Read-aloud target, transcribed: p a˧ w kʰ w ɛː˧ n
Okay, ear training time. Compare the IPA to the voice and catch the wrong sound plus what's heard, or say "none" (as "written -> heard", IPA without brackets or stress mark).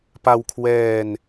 none